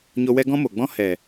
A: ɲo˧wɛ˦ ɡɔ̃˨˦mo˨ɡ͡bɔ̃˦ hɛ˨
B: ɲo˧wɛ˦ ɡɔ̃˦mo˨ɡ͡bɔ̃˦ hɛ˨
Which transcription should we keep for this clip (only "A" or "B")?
B